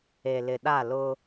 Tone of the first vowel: low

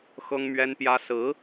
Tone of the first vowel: high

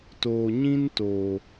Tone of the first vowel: low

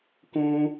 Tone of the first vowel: high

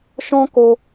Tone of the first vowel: high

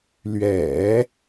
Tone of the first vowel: low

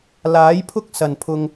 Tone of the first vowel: rising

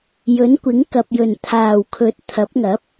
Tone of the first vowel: rising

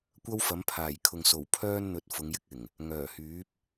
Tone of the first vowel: high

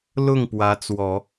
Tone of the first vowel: falling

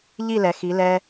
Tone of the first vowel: falling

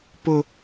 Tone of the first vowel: high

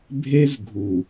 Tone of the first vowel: high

